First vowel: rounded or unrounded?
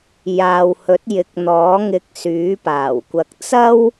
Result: unrounded